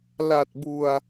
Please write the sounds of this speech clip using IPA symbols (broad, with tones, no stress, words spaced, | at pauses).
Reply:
la˨˩t̚bu˨˩a̯